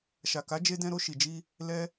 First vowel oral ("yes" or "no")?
yes